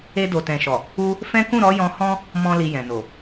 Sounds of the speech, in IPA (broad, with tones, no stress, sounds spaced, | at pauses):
e˧ d o˨ t ɛ̃˨ ʃ ɔ˨ | u˧ | f ɛ̃˦ k ũ˦˨ ɾ ɔ˨˦ j ɔ̃˧ h ɔ̃˦ | m ɔ̃˨ l i˨ j ɛ̃˨ n o˨